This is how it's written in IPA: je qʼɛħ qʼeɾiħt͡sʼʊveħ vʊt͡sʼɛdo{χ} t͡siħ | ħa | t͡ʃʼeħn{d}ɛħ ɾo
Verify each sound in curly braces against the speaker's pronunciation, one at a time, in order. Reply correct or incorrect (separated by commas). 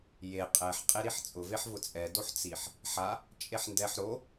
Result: incorrect, correct